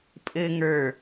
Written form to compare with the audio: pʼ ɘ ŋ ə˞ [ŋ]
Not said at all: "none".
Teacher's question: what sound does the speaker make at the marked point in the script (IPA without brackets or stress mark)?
none